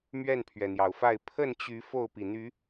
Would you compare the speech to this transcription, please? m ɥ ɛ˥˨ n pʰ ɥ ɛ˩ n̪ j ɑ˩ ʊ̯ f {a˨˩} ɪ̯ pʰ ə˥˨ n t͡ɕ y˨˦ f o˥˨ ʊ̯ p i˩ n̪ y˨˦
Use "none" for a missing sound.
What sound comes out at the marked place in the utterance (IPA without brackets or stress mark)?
a˥˨